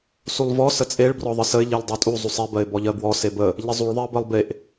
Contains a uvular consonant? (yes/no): no